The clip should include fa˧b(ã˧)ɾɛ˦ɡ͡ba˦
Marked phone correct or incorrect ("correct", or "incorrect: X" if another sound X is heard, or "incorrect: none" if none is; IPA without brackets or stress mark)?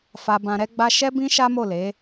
correct